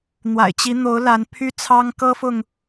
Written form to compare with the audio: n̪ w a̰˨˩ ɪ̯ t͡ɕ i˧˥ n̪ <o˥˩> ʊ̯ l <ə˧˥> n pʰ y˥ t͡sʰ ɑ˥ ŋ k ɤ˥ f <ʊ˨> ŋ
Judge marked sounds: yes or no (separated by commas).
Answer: no, no, yes